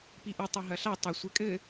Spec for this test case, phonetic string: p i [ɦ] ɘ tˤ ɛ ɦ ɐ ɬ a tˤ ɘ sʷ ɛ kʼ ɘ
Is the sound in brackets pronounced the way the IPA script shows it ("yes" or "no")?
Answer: no